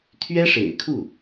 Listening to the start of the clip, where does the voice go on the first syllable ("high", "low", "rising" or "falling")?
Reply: high